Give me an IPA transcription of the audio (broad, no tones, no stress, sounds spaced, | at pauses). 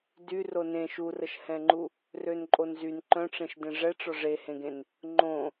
d y r o n ẽ ʃ u r ə ʃ h ɛ̃ ŋ͡ǃ u | r ø n ǃʼ o n z y n ǃ œ̃ ʈ͡ʂ ẽ ʃ d ẽ ʐ ɛ ʈ͡ʂ ɔ ʐ e h ẽ ɡ ẽ n | ŋ͡ǃ õ